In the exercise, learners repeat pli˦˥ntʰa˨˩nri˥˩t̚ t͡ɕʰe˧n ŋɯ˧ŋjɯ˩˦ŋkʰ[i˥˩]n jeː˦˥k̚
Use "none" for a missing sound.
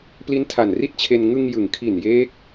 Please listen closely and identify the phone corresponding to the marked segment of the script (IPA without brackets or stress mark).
i˨˩